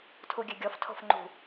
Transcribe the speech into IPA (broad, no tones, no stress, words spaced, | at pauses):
tʰuɡʲøɡʲɔf tʰo̤fŋ͡ǃṳ